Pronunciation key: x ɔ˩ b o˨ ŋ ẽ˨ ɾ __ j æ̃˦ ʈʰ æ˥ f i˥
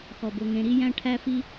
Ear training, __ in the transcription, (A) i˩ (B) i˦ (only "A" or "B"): B